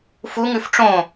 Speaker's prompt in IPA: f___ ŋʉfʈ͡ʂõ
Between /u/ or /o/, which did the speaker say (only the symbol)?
u